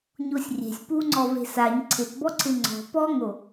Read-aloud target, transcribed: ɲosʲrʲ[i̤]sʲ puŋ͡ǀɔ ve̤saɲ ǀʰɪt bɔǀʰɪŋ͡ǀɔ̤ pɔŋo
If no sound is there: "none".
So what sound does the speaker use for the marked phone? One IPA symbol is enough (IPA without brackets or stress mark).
e̤